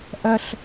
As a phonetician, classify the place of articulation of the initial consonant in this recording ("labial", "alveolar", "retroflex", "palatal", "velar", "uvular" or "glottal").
glottal